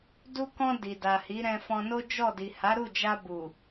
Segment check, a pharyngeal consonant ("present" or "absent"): absent